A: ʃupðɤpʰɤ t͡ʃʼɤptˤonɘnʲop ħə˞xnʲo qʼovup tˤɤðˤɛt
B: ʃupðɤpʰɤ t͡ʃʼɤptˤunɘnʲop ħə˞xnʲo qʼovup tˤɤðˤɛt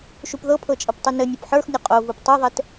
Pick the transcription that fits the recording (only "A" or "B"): B